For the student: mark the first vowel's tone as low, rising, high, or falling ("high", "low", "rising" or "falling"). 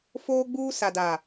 high